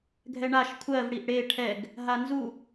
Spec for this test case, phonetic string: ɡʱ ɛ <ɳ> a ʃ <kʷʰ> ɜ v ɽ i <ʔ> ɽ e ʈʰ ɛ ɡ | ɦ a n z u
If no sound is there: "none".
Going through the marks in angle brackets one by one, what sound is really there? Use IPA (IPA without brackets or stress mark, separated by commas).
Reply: ɳ, kʷʰ, ʔ